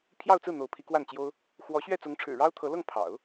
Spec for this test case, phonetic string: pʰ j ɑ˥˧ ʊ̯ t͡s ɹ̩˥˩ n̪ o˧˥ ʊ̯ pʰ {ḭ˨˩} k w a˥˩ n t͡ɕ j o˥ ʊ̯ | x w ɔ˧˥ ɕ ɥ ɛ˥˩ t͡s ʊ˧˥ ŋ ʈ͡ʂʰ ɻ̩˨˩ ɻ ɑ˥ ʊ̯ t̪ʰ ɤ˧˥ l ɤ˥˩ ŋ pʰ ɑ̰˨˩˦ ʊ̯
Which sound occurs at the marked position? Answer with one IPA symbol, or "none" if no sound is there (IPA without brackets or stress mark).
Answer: i˧˥